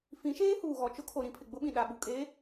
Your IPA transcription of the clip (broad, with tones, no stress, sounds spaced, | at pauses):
f ĩ˨˦ ʃ eː˦ h uː˨ ɣ ɔ˨ t͡ʃ ʊ˦ kʰ o˨ ɾ ĩ˦ pʰ ɪ˨ ɡ͡b ʊ˦ ɓ ĩ˨ ɗ a˨ ɓ u˨ kʼ e˨˦